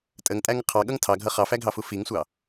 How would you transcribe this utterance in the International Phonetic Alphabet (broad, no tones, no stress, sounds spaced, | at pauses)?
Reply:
tʼ ə ŋ tʼ æ ŋ ə qʰ ɑ ɠ ʌ ŋ tʰ ɑ ɡʱ ʌ χ ɑ f æ ɡʱ ɑ f u f i ŋ sʷ ɑ